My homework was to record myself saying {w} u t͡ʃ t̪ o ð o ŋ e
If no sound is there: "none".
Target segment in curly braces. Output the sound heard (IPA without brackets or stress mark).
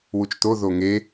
w